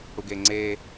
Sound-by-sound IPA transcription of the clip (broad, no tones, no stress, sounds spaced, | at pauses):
ɽ u ɡ e ŋ͡ǀ e